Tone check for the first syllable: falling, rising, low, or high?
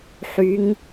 rising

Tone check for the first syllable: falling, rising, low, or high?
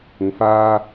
rising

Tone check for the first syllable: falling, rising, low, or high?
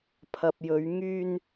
low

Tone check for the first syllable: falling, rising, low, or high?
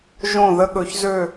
falling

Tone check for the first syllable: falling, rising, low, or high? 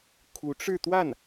rising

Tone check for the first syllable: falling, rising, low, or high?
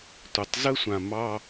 low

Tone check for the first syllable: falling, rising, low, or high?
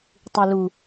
low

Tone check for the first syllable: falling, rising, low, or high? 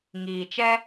low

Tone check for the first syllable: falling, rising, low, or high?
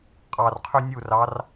low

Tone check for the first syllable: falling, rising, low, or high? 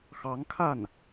rising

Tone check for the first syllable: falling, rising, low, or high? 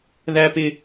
high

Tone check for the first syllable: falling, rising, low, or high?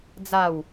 falling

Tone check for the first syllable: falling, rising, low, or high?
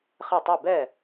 falling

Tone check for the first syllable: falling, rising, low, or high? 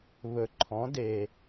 low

